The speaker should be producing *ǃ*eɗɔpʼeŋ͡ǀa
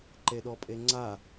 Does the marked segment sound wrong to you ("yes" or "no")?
no